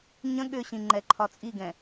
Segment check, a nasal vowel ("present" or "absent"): present